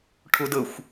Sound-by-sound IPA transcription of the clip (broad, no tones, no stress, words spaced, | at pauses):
ʈʰʊdəxʷ